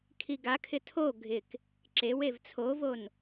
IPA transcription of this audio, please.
kʰ i ɡ a kʰ ɪ tʰ o ɡʱ ɪ k | ǁ e w e v t͡sʰ o v o n

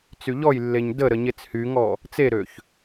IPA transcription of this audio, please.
t͡s y ʎ ɔ j lː e ɲ d ə ɾ ə ɲ e t͡s h y ŋ ɔ | t͡s e ɾ ø ç

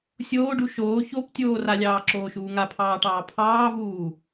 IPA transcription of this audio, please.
sʲ oː ɖ u ʃ oː ç o p tʲ oː r a lʲ ɑː ǁ oː ʃ uː ŋ a pʰ ɑː ʈ ɑː pʰ ɑː v uː

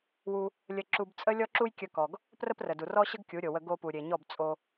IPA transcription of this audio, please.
w u˧ | lʲ ə˧ ǁ u˧ b t͡sʼ ə˦ lʲ ɔ˦ ǁ u˦ j kʲ ə˧ k ɔ˨ ɡ | p r ə˦ p r ə˨ d u˨ r ɔ˦ ɕ ə˦ ɡ kʲ u˨˦ ɾʲ o˨ w ə˧ ɡ o˧ p u˨ ɾʲ e˨ ɲ ɔ˦˨ b t͡sʼ o˧

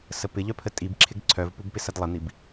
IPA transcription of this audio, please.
s ə p ɪ ʎ œ pʰ ə tʼ i b ǁʰ ɪ ɡ ǀʰ œ v p u b p ɪ s ɐ d lˠ ə n̪ i b

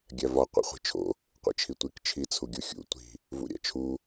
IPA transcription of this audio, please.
ɡʲ æ v ɒ qʷ ḭ χʷ i̤ t͡ʃʰ o̰ | qʷ ḭ t͡ʃʰ i tʷ i k t͡ʃʰ i t͡sʰ u ɡʲ u xʲ ṵ tʷ i̤ | v ṵ ɾʲ æ̰ t͡ʃʰ u

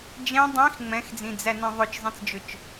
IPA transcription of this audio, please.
d͡ʒ ɛ̃ dˤ ĩ x ŋ͡m ɛ̃ x d͡z ĩ d͡z æ n ĩ ðˤ ɵ t͡ʃ zˤ ẽ t͡s d͡ʒ ɵ t͡ʃ

